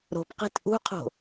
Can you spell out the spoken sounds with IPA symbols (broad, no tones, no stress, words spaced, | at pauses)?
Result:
ɾo̤pqe̤t ʔṳqʰo̤